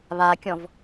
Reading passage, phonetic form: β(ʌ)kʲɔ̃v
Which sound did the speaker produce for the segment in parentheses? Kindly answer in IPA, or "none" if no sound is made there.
a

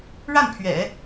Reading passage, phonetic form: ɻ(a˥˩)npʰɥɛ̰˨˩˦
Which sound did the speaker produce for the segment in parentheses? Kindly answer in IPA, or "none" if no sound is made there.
a˥˩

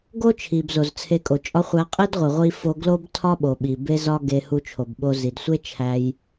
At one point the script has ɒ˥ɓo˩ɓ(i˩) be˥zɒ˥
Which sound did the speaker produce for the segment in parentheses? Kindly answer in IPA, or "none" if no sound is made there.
i˩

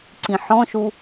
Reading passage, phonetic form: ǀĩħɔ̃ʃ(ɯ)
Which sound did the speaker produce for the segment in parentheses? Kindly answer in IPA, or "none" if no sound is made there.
u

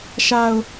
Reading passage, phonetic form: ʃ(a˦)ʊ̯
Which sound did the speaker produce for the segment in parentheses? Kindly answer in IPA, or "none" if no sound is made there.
a˨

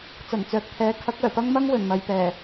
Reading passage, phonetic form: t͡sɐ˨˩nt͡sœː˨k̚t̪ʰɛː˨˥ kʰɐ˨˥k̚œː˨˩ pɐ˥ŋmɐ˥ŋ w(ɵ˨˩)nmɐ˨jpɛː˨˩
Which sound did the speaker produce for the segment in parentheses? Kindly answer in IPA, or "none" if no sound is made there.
ɵ˨˩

